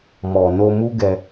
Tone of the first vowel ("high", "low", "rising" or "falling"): low